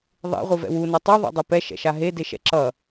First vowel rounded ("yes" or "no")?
no